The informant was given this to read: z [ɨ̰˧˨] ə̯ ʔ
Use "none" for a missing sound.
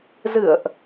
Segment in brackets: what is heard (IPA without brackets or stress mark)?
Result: ɨ̰˧˨